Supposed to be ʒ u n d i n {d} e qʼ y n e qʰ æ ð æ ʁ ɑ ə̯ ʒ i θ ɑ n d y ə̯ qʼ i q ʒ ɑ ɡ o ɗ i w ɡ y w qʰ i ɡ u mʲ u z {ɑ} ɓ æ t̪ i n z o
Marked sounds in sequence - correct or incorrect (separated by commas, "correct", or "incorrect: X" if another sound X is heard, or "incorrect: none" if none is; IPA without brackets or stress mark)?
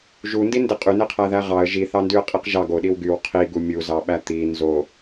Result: correct, correct